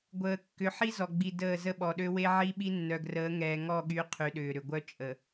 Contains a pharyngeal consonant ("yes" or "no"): yes